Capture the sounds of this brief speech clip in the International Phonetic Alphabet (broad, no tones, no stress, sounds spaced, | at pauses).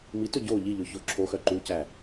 m i t ɵ ɟ o ʎ i ʎ ɵ ç o ǁʰ o x œ ǃ u c æ